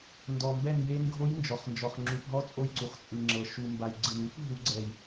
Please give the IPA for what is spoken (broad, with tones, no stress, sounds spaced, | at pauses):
n d ɔ˩ m b ɛ˧˩ n j e˧˥ n ɡʱ o˧˥ j n d͡ʒ ɔ˩ χ n d͡ʒ ɔ˩ χ ŋ͡ǁ u˩ p ɦ ɔ˧˥ t͡sʼ o˧˩ j ǀ u˩ χ t͡sʼ ɯ˩ ŋ͡ǁ ɤ˩ ʃ u˩ m b a˩ j ɡ͡ǀ ɯ˩ n u˧˥ p ɦ u˧˥ ɡ͡ǀ ɛ˧˩ j